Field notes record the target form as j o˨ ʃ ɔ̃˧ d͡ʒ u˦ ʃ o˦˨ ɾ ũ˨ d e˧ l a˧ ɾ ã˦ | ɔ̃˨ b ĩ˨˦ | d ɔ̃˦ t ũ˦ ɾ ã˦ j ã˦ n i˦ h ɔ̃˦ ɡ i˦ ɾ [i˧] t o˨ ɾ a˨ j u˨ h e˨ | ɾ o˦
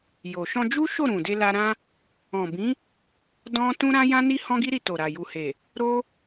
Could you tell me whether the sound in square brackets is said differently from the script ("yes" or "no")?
no